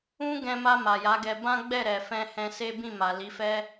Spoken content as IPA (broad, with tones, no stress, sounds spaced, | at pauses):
ũ˦ ɡ ɛ̃˧ m a˧ m a˨ j a˨˦ ɡ ɛ˧ b ã˦ ɡ͡b ɛ˦˨ ɾ ɛ˨ f ɛ̃˧ h ɛ̃˧ s e˦ b ĩ˦˨ m a˨ l i˨˦ f ɛ˦